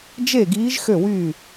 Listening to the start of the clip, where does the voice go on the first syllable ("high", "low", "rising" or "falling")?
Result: falling